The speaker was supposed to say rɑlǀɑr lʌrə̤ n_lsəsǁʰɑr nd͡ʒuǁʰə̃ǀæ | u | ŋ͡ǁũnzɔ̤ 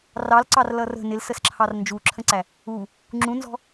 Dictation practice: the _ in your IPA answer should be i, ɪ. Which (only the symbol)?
ɪ